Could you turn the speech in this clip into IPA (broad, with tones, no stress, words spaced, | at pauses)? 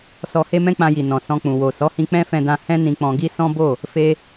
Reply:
sɔ˧ he˦mɛ̃˦k͡pã˧ji˨ nɔ̃˨ sɔ̃˧k͡pũ˨ wo˨ sɔ˨˦hĩ˧ k͡pɛ̃˦fɛ̃˧dã˧ hɛ̃˦nĩ˧k͡pɔ̃˧ɡi˦ sɔ̃˦bo˦˨ | fe˧